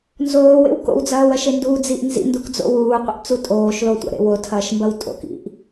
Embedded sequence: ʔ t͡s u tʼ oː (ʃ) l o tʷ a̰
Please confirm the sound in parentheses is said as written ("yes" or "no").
yes